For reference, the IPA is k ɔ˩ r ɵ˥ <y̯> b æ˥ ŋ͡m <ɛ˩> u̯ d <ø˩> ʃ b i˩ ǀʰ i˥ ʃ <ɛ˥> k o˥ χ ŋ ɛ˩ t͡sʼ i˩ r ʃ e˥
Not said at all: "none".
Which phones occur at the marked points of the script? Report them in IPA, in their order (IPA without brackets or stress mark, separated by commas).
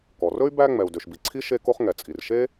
y̯, ɛ˩, ø˩, e˥